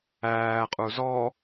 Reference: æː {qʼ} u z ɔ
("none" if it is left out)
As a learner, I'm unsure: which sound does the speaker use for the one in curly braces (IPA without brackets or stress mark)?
qʼ